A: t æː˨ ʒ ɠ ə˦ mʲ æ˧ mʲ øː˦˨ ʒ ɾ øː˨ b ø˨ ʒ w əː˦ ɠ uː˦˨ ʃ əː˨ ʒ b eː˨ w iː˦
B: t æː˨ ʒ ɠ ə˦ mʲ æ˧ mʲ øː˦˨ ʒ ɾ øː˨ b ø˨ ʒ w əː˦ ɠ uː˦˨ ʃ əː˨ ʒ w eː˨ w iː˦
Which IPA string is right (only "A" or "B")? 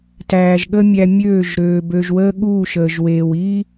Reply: B